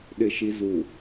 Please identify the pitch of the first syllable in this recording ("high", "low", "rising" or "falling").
low